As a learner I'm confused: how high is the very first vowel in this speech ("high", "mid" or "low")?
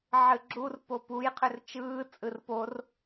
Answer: high